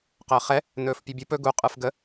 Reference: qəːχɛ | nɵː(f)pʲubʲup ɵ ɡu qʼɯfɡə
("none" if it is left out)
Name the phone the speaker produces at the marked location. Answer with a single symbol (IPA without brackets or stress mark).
f